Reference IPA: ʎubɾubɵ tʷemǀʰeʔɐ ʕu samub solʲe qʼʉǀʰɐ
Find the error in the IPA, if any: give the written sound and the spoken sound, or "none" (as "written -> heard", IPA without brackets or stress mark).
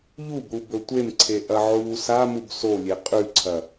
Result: none